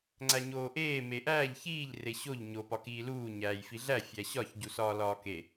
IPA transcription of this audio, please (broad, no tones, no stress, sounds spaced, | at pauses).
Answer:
ŋ͡ǀ æ ɲ oː ʔ eː m e ʔ æː ʎ ç iː ʎ r e ɕ o ʎ ɲ o p ɒ k iː l uː ɲ æː j f i ɮ æ fʲ æ ɕ ɒ ç ɟ u s ɒː l ɒː k e